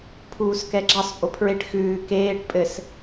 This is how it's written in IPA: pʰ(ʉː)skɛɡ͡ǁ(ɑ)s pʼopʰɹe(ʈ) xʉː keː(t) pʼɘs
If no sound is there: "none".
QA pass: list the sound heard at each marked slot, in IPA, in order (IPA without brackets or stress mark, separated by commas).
uː, ɑ, ʈ, ʈ